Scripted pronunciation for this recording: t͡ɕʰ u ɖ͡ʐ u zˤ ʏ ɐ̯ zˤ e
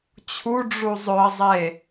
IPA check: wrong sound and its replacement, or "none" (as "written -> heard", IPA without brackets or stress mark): none